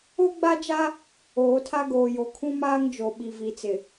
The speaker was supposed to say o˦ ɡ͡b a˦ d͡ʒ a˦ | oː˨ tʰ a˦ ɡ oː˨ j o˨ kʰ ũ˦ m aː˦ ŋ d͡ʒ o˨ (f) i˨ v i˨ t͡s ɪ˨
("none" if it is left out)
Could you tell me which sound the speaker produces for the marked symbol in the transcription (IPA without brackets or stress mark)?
ɓ